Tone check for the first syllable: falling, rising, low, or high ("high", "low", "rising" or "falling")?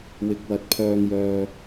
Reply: low